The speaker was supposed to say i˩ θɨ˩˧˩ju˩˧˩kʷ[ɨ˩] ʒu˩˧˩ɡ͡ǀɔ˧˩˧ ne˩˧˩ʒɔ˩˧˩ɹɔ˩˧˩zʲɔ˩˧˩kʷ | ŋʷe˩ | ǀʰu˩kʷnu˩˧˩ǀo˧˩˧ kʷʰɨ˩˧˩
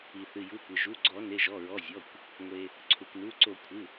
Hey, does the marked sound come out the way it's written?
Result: yes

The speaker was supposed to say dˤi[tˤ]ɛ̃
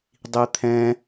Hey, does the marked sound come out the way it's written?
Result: no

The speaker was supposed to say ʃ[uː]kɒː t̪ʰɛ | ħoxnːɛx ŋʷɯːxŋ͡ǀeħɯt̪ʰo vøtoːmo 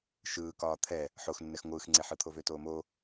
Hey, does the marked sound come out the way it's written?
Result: no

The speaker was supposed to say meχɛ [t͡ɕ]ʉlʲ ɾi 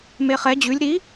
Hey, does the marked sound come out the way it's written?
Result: no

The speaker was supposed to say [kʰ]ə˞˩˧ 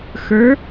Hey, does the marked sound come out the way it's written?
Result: no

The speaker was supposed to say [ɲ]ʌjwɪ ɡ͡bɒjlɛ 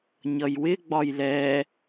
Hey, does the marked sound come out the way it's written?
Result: yes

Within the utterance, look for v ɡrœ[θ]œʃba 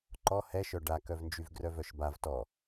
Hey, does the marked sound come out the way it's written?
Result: no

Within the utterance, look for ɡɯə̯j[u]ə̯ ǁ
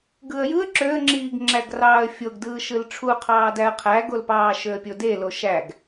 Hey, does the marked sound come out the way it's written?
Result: no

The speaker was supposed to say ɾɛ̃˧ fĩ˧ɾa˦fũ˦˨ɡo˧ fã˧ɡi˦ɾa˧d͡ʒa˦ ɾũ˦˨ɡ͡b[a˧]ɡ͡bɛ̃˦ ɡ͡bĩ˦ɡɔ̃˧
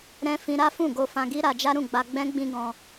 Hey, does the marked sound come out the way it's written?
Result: yes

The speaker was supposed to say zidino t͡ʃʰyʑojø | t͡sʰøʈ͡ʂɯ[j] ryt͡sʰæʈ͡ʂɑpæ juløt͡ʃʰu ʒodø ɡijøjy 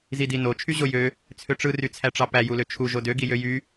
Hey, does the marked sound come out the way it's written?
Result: no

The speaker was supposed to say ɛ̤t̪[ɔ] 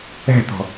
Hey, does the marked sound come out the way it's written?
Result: no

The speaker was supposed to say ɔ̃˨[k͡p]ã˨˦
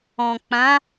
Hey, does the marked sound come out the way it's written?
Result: yes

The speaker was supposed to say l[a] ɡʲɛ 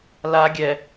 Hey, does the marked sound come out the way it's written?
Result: yes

